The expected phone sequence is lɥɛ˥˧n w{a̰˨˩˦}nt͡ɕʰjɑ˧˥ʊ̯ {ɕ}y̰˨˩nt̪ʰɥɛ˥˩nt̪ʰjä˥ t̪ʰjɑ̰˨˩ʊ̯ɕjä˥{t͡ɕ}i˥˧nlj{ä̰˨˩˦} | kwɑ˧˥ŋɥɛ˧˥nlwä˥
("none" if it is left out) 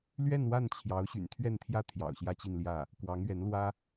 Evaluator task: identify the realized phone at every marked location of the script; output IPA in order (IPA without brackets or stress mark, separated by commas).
a˥˩, ɕ, t͡ɕ, ä˥˩